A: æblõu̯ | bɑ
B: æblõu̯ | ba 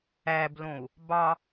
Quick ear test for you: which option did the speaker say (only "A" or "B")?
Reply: A